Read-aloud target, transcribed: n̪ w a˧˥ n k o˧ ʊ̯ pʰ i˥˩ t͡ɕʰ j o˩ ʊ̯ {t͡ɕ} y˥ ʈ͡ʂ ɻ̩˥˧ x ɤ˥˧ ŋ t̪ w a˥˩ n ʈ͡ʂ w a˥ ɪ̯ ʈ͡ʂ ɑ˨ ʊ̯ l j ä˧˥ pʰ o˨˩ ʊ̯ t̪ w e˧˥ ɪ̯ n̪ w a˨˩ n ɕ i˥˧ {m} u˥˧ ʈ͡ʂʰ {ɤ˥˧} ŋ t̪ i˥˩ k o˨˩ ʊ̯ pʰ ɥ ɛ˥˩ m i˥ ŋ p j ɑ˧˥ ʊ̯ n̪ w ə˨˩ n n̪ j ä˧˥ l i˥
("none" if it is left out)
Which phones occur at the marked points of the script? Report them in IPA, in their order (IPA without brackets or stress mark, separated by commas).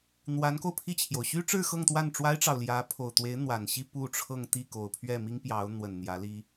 ɕ, p, ɤ˥˧